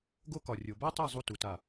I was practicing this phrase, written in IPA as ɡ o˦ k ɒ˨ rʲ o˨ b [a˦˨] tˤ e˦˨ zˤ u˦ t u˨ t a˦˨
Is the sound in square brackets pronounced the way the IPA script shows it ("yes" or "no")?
no